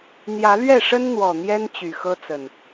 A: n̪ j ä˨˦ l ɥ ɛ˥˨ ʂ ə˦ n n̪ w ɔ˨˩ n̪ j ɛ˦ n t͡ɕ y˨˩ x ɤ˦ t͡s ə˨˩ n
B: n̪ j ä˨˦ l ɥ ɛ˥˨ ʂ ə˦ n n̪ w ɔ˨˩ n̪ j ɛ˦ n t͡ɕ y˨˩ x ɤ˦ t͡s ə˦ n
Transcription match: A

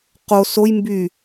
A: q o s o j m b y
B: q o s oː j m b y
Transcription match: A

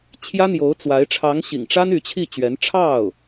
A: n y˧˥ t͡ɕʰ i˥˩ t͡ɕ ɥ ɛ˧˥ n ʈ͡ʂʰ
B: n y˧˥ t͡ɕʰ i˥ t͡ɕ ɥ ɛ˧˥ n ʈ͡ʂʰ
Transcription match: A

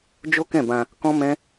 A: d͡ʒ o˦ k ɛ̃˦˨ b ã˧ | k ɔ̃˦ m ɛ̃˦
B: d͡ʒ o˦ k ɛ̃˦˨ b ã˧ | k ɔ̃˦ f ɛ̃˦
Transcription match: A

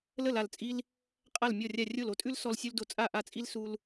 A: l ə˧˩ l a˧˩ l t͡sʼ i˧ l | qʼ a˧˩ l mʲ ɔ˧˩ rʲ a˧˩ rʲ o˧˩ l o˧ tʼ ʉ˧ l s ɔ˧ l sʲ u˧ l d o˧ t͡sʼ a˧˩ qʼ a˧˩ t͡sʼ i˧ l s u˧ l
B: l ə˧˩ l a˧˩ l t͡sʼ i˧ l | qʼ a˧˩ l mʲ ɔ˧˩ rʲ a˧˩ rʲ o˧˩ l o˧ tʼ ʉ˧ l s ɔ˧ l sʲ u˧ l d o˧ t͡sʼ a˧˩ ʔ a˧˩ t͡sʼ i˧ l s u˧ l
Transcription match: B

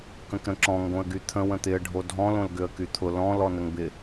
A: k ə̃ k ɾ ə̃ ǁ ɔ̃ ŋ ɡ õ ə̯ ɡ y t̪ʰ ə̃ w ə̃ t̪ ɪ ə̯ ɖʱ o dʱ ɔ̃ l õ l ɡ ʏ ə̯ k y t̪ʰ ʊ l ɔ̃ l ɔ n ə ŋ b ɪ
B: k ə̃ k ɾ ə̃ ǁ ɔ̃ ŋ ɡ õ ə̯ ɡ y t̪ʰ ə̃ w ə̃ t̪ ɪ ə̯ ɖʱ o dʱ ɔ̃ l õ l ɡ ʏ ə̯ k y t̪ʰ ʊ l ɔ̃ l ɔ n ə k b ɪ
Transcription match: A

